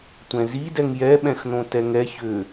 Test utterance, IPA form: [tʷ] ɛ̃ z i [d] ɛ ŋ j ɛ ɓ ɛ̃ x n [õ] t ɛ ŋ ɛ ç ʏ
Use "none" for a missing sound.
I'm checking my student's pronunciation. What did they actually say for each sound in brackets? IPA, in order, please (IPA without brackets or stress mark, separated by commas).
tʷ, d, õ